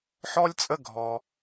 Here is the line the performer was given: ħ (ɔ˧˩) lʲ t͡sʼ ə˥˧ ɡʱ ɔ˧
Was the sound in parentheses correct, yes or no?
no